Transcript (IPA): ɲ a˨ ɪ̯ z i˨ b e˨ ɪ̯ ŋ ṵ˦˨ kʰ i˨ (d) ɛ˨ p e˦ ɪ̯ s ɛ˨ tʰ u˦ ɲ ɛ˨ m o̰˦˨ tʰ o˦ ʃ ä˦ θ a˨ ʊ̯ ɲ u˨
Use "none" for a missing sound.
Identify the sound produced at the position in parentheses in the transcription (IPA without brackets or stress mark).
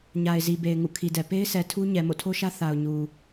d